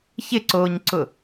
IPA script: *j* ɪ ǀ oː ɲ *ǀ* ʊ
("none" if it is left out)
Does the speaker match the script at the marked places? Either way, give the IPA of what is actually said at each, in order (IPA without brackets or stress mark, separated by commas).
ç, ǀ